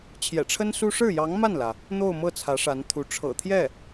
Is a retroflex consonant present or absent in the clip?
present